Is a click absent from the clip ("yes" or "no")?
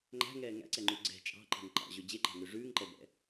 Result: no